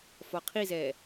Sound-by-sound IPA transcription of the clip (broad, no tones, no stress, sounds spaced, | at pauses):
f ɒ qʰ i z ɛ